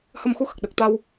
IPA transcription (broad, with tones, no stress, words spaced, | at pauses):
hə˧mxu˧˥ xə˨˩k̚ɗə˨˩k̚t̪a˧w